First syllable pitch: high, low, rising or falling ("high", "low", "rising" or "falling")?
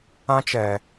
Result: high